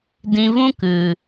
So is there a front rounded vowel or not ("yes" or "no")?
no